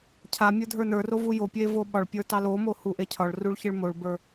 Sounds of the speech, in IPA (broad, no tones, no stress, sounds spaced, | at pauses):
cʰ a mʲ ə˞ dʱ ə˞ n ə˞ r o v u j o pʲ e v o ɓ ɒ ɭ pʲ ə˞ t ɑ l o m o h u ʔ e cʰ ɒ ɭ r u ɭ ç e ɭ m o ɭ b ə˞